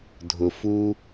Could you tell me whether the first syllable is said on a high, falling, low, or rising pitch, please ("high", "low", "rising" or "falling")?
low